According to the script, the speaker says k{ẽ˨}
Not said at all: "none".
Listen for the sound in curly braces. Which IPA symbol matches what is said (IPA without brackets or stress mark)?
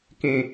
ẽ˨